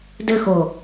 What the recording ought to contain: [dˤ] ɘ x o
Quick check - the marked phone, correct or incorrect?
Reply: incorrect: d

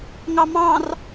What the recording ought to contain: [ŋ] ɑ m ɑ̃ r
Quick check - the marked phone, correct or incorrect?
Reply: correct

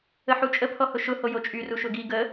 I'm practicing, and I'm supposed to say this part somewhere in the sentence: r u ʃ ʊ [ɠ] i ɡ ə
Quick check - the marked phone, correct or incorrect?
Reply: incorrect: ɡ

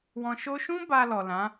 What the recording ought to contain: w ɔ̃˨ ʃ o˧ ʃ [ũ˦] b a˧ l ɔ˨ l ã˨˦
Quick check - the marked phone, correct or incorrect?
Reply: correct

